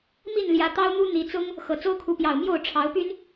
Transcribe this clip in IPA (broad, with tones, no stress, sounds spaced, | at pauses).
m i˥˨ n l j ä˨˦ t̪ ɑ˦ ʊ̯ n̪ u˦ n̪ i˨˦ t͡s ʊ˦ ŋ | x ɤ˨˩ t͡s o˦ ʊ̯ kʰ u˨˦ p j ɑ˨˩ ʊ̯ m j o˥˨ ʊ̯ ʈ͡ʂʰ ɑ˨˦ ʊ̯ p y˦ n